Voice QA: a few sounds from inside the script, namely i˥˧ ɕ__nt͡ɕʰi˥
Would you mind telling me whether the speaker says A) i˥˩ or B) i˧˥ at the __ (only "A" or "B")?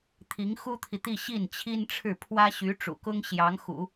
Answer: A